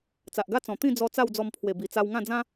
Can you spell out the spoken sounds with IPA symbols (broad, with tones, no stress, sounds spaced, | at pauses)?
t͡s a˨ ʔ ɡ a˦ t͡s ɔ̃˨˩ t̪ ĩ˥˧ d͡z ɔ˧ t͡s a˥˧ w d͡z ɔ˧ m pʰ w e˨˩ b i˨˩ t͡s a˧ w ŋ ã˥˧ d͡z ã˦